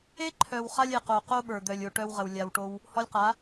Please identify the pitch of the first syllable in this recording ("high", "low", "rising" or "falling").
high